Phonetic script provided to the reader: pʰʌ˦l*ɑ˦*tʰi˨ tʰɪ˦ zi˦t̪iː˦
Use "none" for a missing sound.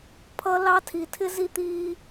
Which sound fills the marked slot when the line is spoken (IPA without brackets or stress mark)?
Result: ɑ˦